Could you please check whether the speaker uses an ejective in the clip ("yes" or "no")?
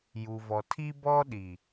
no